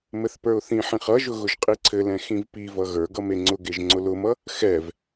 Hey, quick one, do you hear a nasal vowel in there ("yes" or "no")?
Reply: yes